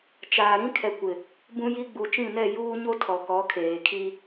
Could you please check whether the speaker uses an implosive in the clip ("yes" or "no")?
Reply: no